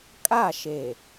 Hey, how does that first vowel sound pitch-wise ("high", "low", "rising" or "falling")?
falling